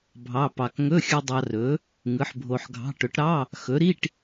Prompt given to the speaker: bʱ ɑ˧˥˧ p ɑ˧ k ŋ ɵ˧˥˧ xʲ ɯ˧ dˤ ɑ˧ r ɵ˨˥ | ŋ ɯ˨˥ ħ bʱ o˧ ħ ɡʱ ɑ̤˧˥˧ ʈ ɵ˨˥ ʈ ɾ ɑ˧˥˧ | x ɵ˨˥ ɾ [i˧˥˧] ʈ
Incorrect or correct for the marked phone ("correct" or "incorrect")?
correct